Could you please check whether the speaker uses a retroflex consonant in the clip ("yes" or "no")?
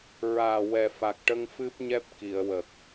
yes